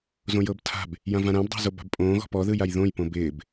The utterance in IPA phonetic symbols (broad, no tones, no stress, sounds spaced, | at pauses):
z õ j ɤ b tʰ a̤ b | j ã v ã ɾ ã b dˤ a̤ z o b a̤ b pʼ õː ɣ ɔ̤ p ɔ ð ɯ j a j ð õ j p õ b ɪː b